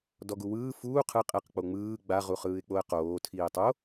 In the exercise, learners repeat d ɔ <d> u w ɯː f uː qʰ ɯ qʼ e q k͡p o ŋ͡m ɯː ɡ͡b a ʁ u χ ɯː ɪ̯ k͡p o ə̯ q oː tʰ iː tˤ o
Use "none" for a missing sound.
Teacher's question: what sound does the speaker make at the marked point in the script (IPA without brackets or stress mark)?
ɡ